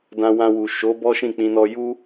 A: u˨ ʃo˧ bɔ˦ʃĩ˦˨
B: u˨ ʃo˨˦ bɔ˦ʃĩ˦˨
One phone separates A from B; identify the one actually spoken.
B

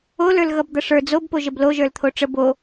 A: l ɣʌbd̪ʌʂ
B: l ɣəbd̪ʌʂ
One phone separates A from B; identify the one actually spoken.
A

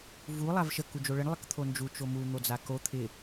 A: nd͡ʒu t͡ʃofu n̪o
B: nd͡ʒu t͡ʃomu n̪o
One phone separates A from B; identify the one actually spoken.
B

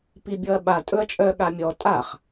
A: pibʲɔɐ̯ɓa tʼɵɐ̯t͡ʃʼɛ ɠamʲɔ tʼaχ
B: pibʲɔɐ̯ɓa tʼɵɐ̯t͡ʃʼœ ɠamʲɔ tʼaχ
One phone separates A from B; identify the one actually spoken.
B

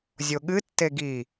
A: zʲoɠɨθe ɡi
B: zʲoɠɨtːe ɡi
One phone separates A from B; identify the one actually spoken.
B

